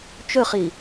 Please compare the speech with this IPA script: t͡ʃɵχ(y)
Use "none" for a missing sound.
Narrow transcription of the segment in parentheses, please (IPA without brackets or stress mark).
i